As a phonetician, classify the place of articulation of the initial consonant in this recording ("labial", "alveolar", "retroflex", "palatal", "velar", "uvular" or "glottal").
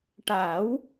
retroflex